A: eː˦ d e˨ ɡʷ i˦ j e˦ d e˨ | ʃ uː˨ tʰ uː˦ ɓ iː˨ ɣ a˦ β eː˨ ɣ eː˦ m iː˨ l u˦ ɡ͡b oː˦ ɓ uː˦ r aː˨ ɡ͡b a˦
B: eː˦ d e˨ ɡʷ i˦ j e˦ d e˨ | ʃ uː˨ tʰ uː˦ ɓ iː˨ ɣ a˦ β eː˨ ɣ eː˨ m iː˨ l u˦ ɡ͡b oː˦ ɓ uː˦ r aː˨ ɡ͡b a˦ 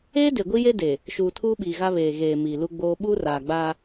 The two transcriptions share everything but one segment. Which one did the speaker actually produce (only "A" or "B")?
B